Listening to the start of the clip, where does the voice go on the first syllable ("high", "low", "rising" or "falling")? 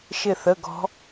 falling